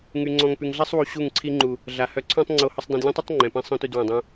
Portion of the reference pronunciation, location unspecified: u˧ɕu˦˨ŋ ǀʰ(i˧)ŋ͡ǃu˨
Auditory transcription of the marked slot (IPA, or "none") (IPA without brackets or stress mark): i˧